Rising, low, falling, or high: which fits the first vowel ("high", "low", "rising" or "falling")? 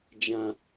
high